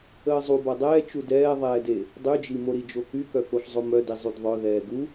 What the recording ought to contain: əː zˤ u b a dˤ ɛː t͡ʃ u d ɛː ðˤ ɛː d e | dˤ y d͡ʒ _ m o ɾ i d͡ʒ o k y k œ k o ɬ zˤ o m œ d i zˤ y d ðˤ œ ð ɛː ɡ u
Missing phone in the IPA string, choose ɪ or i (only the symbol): i